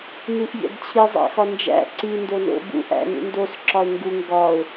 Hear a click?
yes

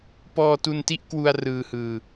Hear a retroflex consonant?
no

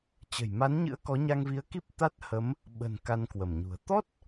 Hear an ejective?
no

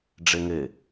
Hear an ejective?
no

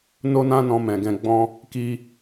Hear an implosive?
no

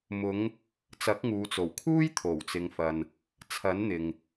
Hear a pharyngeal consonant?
no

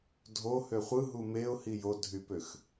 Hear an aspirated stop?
no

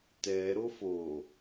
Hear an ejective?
no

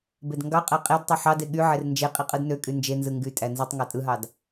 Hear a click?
no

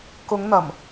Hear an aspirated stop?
no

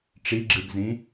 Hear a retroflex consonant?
yes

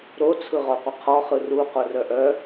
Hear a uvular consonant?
yes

